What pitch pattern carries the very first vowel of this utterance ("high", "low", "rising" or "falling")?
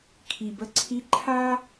low